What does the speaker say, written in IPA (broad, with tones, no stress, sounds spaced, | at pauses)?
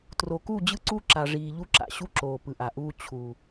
t r o˨ k u˦˨ d͡ʑ ɯ˦ ǀ u˦˨ ǁ a˨ ʐ iː˨ ʎ u˦ ǁ a̰˨ ɕ u˦ ǁ oː˨ p ɯ˨ ʔ a˨ ʔ uː˦ t͡ɕʰ u˨